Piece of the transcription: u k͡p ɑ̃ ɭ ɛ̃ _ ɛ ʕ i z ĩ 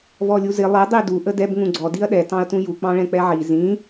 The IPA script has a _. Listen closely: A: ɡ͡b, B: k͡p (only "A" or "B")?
B